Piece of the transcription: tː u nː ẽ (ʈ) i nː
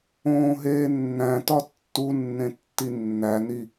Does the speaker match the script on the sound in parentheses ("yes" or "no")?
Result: no